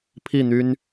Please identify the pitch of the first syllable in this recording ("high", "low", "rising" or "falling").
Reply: falling